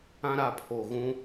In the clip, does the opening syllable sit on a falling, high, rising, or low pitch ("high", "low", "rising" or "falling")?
high